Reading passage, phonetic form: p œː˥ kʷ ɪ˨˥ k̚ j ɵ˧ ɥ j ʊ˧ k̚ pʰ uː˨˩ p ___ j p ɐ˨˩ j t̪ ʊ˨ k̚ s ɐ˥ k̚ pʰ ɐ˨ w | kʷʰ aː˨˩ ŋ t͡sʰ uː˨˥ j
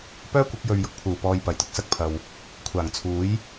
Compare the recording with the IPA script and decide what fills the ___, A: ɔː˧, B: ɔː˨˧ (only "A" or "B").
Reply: A